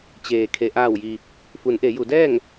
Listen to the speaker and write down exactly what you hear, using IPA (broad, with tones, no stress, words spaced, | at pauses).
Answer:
t͡ɕeː˩ kʰe˩ʔaː˧˩wji˩ | fu˩˧nʔe˩˧ju˩˧dɛː˥˨ŋ